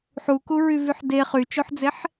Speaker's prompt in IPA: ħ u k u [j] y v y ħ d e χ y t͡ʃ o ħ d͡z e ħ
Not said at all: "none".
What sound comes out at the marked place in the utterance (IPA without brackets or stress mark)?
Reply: ɹ